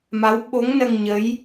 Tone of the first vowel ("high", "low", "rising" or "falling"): rising